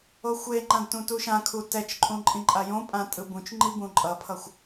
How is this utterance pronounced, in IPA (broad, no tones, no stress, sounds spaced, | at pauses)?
o xʷ e ŋ͡ǃ ã d t ũ t u ʃ ã kʰ u t ɛ t͡ʃ ǃʼ ũ ǃʼ ĩ ǃʼ a j õ pʼ ã tʼ ɯ b ũ t͡ʃ ŋ͡ǃ i b ũ ǃʼ ʌ pʰ ʌ xʷ